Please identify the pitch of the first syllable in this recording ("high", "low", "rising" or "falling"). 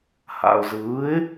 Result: low